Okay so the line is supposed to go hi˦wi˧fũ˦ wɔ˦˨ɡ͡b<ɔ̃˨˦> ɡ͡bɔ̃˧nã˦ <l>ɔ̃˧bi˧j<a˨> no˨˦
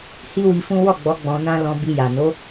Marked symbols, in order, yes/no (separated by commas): no, yes, yes